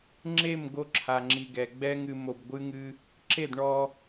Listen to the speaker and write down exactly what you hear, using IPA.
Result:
ŋ͡ǁ e˦˨ m ɡ o˧ ǁʰ a˨ ŋ͡ǁ i˨ ɡ ɛ˨ ɡ͡b ɛ˦ ŋ ɨ˧ m o˧ b ɡʷ ɨ˦ ŋ ɨ˦ | ǁ e˦˨ d ɳ ɔ˧

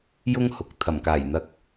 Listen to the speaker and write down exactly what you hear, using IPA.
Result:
j ʊ˥ ŋ h ʊ˨ k̚ t̪ʰ ɐ˨˩ m k aː˨˩ j n̪ ɐ˨˥ k̚

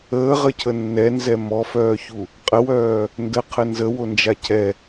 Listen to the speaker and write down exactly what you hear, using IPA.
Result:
əː ʁ ə cʰ ə nː ɛ n z ɛ m ɔ f œː ç u | qʼ ə w œː | n d ə qʰ ə n z ə w o n d͡ʒ a cʰ ɛ

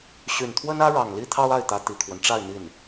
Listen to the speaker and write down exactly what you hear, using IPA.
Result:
ɕ y˨˩ n t̪ʰ w ə˥ n ä˥ ɻ ɑ˨˩ ŋ l i˥ t̪ʰ ɑ˥ ʊ̯ a˥˩ ɪ̯ t̪ ä˧˥ t̪ i˨˩ kʰ w ə˦ n ʈ͡ʂ a˥˧ ɪ̯ n̪ i˥˩ n

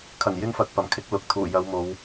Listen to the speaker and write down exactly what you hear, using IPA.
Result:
kʰ ɐ˨˩ n j ɪ˧ ŋ f ɐ˨ k̚ p ɐ˨˩ m kʰ ɪ˨˥ k̚ l ʊ˨ k̚ t̪ʰ uː˨˩ j ɐ˨˧ w m o˨˧ w

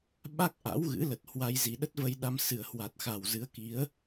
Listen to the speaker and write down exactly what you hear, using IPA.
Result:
ɓ a˦˥ k̚ ʔ a̰˧˥ w ɣ ɨ̰˧˥ l ə˨˩ t̚ h w a˧ j z i˨˩ ɗ ə˦˥ t̚ v ə˧ j ɗ a˧ m s ɨ˨˩ ə̯ h w a˨˩ t̚ x a˨˩ w z ɨ˨˦ ə̯ k i˨˦ ə̯

